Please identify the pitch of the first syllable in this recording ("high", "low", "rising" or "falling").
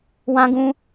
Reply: high